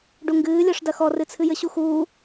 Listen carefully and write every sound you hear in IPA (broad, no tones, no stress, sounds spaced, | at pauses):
ɖ u ŋ ɡ ɨː lʲ ɔ ʂ d ɐ x ɔ r ɨ t͡sʰ ɨ j ɘ ɕ u x uː